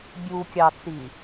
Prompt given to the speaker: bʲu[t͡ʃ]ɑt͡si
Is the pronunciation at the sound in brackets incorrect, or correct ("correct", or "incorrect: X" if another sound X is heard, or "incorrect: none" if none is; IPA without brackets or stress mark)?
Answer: incorrect: kʲ